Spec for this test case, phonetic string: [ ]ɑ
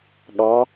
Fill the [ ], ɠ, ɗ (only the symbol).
ɠ